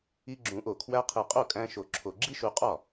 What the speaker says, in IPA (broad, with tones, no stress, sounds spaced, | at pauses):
i˧ ɡ͡ǁ ũ˨˩˦ ʔ o˨˩ kʰ w æ˧ qʰ i˨˩ qʼ o˥˩ kʼ æ̃˧ ʃ o˨˩ ǁʰ o˨˩ ɡ͡ǁ i˥ ʃ u˧ qʼ ɒ˥˩